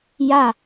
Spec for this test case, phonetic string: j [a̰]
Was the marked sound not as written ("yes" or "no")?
yes